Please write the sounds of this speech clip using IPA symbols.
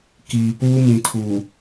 k iː˨ p uː˦ m ĩ˨ tʰ u˨

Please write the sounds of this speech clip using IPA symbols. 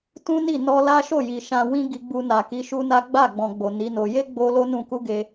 t ũ˦ n i˦˨ n ɔ˧ l a˦ ʃ o˦˨ j i˨ ʃ ã˧ w ĩ˦ ɡ i˧ ɡ͡b u˧ n a˨ k i˨˦ ʃ u˦ n a˦ ɡ͡b a˦˨ ɡ͡b ɔ̃˧ ɡ͡b o˨ n i˨˦ n o˧ j e˦ ɡ͡b o˧ l o˦ n ũ˧ k u˦ ɡ e˦

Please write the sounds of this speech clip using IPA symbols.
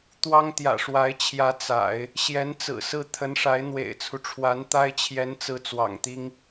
t̪ w ɑ˥ ŋ t̪ j ä̰˨˩ ʂ w a˧˥ ɪ̯ t͡ɕʰ j ä˧˥ t͡s a̰˨˩˦ ɪ̯ | ɕ j ɛ˧˥ n t͡s ɹ̩˨˩ s ɹ̩˥˩ t̪ʰ ə˧˥ n ʂ a˧˥ ɪ̯ n̪ w ḛ˨˩ ɪ̯ t͡sʰ u˦ ʈ͡ʂʰ w a˧˥ n t̪ a˥ ɪ̯ t͡ɕʰ j ɛ˧˥ n t͡s ɹ̩˧˥ t͡s w ɑ̰˨˩ ŋ t̪ i˥ ŋ

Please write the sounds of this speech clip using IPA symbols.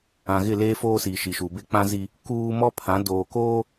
ã˨ ɣ ɪ˦˨ l eː˦ f oː˦ s iː˨ ʃ i˨ ʃ u˨ b e˦ k͡p ã˦ z i˦ | k uː˦ m ɔ˦ pʰ ã˨˦ d oː˨ k oː˦

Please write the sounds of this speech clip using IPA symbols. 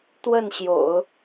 t̪ w ə˥˩ n ɕ j o̰˨˩˦ ʊ̯

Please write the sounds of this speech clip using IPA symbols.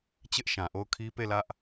t͡ɕ ɪ˦ ʔ ʃ ã˨ ʔ o˦˨ ʊ̯ kʰ i˦ p e˦˨ l ä˦ ʔ

